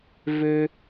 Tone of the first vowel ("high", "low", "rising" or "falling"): low